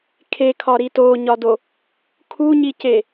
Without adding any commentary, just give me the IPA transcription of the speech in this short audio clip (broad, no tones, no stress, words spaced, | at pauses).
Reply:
kʰekʰɒɾi toɲɒdo | kʰuɲice